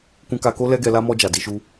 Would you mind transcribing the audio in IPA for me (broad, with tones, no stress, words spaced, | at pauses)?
kũ˧ka˧ko˦ lɛ˦ɡɛ˧la˦ mɔ˧ d͡ʒa˨di˨˦ʃu˦